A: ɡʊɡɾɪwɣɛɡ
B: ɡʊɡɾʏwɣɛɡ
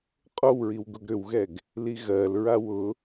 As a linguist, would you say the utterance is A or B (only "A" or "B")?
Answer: B